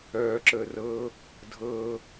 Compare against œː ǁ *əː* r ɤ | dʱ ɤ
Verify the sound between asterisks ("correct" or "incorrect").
correct